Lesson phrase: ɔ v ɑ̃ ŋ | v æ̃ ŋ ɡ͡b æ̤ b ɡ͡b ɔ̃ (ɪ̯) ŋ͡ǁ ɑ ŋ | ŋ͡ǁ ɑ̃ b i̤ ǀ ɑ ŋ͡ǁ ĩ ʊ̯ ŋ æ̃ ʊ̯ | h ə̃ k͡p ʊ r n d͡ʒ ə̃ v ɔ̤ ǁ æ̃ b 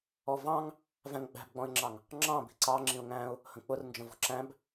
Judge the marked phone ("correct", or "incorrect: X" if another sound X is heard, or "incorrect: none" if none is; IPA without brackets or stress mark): correct